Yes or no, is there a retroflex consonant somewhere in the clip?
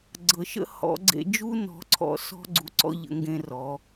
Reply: no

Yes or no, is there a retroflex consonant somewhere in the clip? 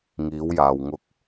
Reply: no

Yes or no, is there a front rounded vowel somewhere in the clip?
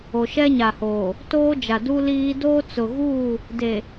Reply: no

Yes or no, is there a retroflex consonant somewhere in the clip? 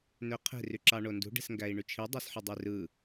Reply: yes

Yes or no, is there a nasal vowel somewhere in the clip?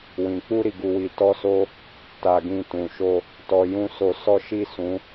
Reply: yes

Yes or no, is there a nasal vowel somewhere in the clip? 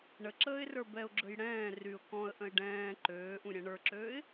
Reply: yes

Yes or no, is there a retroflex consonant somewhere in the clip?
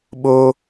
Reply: no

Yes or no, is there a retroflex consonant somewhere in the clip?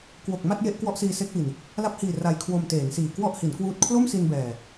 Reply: no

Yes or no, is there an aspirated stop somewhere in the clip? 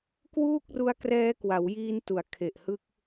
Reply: yes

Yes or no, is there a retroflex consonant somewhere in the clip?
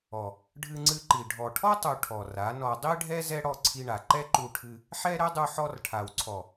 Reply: yes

